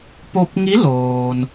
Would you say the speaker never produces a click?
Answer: yes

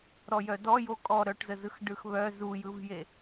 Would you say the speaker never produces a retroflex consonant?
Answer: no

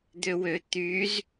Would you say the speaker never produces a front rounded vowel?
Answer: no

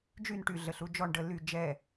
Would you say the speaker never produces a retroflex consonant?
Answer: no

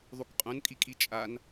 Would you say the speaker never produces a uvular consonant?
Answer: no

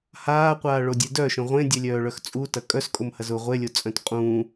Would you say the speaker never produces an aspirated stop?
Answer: yes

